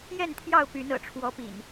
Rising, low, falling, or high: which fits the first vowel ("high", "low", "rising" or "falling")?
falling